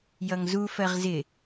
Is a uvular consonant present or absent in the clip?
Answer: present